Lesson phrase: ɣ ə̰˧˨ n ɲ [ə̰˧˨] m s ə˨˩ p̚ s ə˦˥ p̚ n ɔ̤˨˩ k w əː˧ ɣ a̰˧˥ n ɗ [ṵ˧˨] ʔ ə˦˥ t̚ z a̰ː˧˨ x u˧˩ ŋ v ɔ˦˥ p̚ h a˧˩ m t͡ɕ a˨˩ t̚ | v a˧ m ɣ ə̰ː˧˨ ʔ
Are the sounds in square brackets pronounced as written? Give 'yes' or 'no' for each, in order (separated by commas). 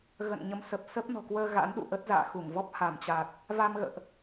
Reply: no, yes